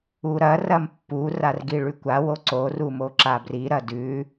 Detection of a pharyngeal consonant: absent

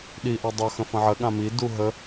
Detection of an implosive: present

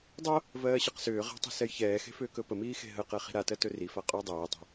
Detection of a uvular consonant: present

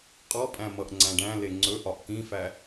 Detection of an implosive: absent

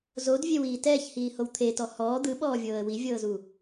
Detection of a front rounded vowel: absent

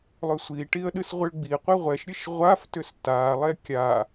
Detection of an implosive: present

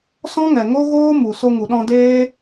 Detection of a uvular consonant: absent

